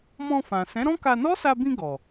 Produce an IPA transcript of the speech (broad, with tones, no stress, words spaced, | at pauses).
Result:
mɔ̃˧fã˨ sɛ̃˨˦ɾɔ̃˦ka˧ nɔ˦sa˧bĩ˧ ɡɔ˨